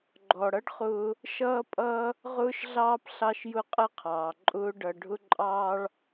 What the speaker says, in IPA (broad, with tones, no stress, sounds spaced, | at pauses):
ɡ͡ǃ ɔ˩ ɽ ʌ˥ ɖ χ ʊː˧ | ʃ ʌː˥ pʼ ʌː˥ | ʁ ʊː˥ ʃ ɮ ɑː˥ p ɬ ɑ˥ ʃ j ʊ˥ qʼ ə˥ qʰ ɑː˩ ǃʼ ʊː˥ ɖ ʌ˧ ɖʱ ʊ˥ ǃʼ ɑː˥ ɭ